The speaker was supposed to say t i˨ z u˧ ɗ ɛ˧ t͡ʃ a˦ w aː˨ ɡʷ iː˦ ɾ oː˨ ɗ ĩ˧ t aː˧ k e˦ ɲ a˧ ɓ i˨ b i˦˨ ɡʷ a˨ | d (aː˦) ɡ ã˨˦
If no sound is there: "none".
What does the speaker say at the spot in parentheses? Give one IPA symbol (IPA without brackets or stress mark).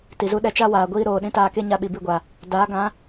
aː˨˦